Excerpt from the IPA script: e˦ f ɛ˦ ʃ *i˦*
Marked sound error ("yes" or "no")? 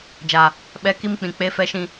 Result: yes